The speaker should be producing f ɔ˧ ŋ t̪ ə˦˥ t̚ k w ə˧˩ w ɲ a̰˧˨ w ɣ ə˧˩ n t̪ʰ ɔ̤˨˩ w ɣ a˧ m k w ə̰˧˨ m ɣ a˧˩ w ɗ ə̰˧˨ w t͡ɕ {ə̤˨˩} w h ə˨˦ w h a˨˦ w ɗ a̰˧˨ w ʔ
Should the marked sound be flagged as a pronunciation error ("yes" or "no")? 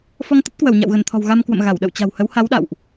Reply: yes